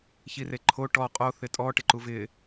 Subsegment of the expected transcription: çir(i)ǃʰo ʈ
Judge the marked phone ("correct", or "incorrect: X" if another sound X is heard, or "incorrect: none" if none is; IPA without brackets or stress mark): incorrect: e